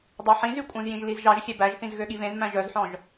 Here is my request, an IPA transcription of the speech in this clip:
dˤ ɑ ħ ĩ z y kʷʼ œ̃ z j ĩ ʒ l i z ʒ ɑ ʒ xʲ e b æ ʒ θ ĩ z ɣ ø ɠ i v ẽ z m æ̃ ʒ œ z ħ ɔ̃ ʒ

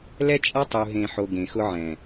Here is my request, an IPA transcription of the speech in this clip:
l ɛ˦ t͡ʃʼ a˦ tˤ u˨ ɦ ẽ˨ ħ o˨ ɡ ẽ˨ x ʊ˦ ʕ ɛ̃˨

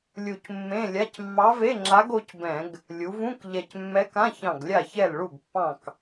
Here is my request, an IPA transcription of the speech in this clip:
lʲ u˧˩ c mː ẽ˧˥˧ lʲ a˧˥˧ c mː ɑ˧˥ v e˧˥˧ ŋ͡ǁ a˧˥ ɡ o˧˥ c b ɛ̃˧˩˧ ɡ | lʲ u˩˧ v ũ˧˥˧ k ʎ ɛ˧˩ c mː ɛ˧˥ k ã˧˥˧ ç ɑ̃˧˩ ɡ lʲ a˥˩ ç ɛ˥˩ l ɭ u˥˩ ɡ pː ɑ̃˥˩ k

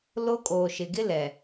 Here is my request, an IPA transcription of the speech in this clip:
l o˦ kʼ oː˨ ʃ ɪ˨ ɡ ɪ˦ l ɛ˨

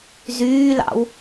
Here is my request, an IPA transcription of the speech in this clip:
z yː l ɑ̰ w

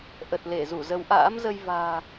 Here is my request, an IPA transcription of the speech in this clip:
ʔ ə˨˩ t̚ l e˧˩ z u˧˩ z ə˨˦ w ʔ a̰ː˧˥ m z ə˧ j v a̤ː˨˩

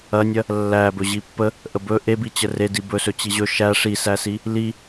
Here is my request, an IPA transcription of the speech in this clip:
ɐ nʲ ɐ | lː æ b ɵ ʑ i pː ə | ʔ ə b ɵ ʔ e b i t͡ɕ ə r e d i b ɵ s ɵ t͡ɕ i ʑ ɵ ʃ æ ʂ i s æ s i | l i

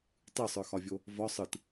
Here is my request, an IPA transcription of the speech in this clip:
tˤ ɯ sˤ ə˞ x ɒ vʲ o | v ɒ sˤ ɯ t

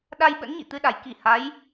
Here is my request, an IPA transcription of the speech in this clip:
ɗ a˧ j ɓ ə̰˧˥ n ɲ ḭ˧˨ t̪ ɨ˧ ɗ a˧˩ j k i˧˩ h a˨˦ j

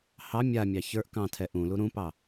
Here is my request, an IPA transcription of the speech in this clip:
h ɑ mʲ a mʲ ɑ ç ə˞ ʔ k ɑ̃ tʰ ɛ ʔ ũ l u ɾ ũ p ɑ

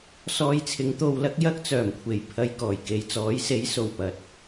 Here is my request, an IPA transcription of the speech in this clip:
s ɔː˧ j t͡sʰ ɪ˨˥ ŋ t̪ o˧ w l ɐ˥ k̚ j ɐ˥ k̚ t͡s œː˨˩ m kʷʰ e˨˩ j pʰ ɐ˧ j k ɔː˨˩ j k e˨ j t͡s ɔː˨˥ j s e˨˥ j s o˨˩ w p ɐ˨˥ t̚

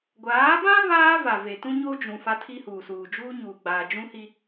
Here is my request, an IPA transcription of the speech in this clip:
ɡʷ aː˨˦ b ã˦ β aː˦ v a˨ v e˨ t ũ˦ ɲ o˦ d͡ʒ ũ˨ f a˦ tʰ i˦ h uː˨ s uː˨ d͡ʒ uː˦ ɲ uː˨ ɡ͡b aː˨ d͡ʒ ũ˦ h i˦

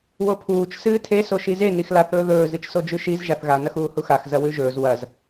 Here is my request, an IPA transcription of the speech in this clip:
w o pʰ uː t͡ʃ s ɨː tʰ e s o ʃ i z e n i x l a θ ɵː ð ɵː z ɨ t͡ʃ s o d͡ʒ ʉ ʃ i z ʒ a θ ɣ a n ɐ x uː h u x a x z ɐ w ʉ ʒ ɵː z w ɐ z

